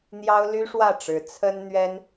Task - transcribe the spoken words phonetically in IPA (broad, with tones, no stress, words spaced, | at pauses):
n̪jɑ˥ʊ̯ly˥ʂwä˥˩ʈ͡ʂɻ̩˧˥ t͡sʰə˥n n̪ɥɛ˥n